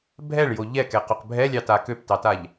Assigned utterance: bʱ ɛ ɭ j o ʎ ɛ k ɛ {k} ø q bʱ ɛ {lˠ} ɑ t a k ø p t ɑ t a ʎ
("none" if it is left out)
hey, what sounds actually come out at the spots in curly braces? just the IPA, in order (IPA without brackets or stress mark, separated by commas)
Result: q, lʲ